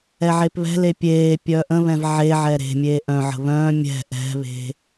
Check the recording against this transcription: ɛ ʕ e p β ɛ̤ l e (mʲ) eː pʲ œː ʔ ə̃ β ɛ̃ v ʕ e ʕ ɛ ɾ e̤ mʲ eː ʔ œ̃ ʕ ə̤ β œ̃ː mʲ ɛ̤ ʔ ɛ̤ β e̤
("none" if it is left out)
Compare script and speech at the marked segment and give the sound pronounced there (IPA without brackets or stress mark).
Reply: pʲ